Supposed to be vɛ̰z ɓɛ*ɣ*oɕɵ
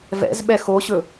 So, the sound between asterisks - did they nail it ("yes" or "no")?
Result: no